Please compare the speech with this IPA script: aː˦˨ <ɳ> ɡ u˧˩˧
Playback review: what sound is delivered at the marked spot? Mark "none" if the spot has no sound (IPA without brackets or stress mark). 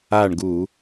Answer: ɳ